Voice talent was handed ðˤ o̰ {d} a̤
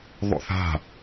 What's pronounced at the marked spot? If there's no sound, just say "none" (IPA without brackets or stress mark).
θ